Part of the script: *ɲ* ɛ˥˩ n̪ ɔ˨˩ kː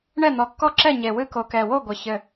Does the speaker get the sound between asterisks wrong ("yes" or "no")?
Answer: yes